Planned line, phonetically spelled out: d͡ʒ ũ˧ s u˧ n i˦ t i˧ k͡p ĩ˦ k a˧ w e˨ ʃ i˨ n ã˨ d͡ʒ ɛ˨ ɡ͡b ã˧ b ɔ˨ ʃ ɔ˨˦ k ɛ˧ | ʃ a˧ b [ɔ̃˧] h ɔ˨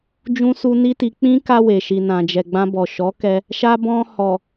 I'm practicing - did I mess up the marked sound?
no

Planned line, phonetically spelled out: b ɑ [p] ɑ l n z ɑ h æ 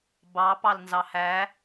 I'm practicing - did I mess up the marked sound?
no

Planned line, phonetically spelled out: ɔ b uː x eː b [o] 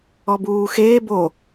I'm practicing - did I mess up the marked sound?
no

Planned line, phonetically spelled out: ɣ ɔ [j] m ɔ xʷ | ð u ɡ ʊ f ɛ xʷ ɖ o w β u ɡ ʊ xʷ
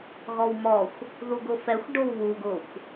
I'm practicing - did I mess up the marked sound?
yes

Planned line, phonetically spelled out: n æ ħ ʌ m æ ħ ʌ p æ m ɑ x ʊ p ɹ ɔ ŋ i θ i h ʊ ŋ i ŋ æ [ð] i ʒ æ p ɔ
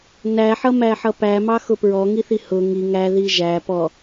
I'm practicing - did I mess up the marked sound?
no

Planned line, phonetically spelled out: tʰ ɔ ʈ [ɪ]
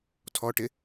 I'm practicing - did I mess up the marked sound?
no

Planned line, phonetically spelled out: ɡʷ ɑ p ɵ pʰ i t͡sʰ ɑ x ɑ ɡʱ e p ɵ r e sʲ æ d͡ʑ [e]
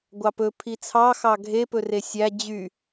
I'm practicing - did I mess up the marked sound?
yes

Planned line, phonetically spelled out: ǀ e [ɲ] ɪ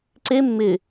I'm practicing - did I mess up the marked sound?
yes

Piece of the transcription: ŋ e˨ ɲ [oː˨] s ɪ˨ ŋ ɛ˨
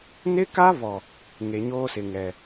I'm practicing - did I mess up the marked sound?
yes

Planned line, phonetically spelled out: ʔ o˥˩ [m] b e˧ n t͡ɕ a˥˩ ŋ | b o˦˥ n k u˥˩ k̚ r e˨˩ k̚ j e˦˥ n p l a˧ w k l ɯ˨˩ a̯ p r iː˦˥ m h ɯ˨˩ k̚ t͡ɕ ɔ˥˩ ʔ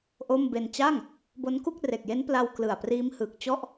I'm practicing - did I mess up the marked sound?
no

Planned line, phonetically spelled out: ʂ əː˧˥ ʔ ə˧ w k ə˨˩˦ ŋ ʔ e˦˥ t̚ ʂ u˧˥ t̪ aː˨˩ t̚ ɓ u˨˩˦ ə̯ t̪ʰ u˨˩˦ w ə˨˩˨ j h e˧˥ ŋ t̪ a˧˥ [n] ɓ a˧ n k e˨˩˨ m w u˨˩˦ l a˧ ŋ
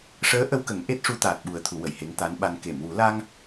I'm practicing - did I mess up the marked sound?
no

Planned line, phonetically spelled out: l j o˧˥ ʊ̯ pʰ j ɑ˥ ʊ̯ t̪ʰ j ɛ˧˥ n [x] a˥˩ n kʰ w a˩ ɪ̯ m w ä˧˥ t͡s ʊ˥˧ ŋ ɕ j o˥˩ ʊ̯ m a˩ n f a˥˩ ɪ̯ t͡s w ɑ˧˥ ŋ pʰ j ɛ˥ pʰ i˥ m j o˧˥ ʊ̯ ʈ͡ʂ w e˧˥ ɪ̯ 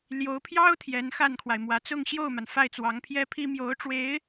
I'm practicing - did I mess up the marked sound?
no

